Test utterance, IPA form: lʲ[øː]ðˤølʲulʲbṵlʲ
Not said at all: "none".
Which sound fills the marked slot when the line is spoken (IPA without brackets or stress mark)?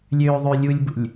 øː